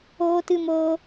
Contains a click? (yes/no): no